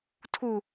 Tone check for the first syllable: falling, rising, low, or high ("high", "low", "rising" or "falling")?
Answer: high